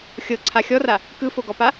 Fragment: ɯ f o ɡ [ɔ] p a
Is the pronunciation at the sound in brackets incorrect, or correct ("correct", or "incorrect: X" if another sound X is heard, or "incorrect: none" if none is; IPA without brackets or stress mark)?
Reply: correct